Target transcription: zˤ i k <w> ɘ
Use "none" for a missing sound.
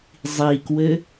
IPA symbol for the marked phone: w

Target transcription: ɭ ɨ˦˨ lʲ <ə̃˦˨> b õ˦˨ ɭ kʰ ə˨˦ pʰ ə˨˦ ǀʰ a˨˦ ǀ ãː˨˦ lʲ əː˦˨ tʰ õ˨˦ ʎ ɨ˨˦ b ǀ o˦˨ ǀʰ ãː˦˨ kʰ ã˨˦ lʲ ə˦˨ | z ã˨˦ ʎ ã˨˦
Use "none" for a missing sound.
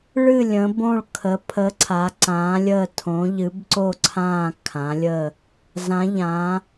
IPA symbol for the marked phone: ə̃˨˦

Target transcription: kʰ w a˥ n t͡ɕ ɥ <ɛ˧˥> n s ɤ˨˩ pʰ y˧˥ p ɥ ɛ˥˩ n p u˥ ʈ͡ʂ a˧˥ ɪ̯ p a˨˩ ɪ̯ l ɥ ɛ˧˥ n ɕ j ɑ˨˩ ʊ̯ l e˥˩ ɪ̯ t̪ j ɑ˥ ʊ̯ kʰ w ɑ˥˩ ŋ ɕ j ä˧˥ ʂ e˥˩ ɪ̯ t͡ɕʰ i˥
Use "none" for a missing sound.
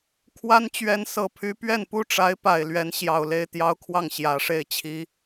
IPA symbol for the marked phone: ɛ˧˥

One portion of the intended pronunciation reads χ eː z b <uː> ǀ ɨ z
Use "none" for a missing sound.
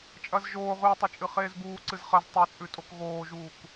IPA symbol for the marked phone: uː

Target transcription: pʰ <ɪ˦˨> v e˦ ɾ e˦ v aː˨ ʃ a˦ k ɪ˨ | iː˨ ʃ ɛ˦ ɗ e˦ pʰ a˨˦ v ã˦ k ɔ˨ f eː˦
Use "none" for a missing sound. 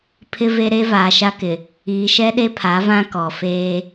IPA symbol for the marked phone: ɪ˦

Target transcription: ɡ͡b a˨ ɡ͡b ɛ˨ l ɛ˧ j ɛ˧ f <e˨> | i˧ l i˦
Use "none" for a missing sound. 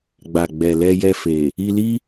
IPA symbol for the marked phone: e˨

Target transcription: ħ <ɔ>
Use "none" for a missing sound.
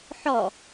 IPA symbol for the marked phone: ɔ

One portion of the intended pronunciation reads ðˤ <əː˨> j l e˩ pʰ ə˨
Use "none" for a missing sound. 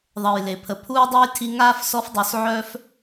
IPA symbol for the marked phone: əː˨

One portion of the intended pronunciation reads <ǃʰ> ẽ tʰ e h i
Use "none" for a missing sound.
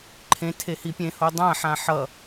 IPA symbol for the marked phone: ǃʰ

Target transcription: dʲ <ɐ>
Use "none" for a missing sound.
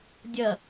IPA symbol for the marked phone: ɐ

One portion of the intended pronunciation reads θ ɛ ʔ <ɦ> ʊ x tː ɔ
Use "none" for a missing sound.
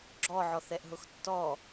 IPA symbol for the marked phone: ɦ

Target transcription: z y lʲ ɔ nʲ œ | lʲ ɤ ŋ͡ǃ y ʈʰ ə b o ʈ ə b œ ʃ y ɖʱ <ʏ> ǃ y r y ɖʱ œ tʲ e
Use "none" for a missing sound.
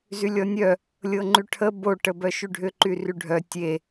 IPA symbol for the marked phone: ʏ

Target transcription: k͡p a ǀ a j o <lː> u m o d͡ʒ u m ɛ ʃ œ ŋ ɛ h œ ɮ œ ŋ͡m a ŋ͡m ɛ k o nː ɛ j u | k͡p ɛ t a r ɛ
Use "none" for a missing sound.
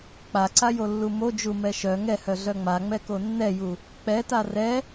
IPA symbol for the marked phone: lː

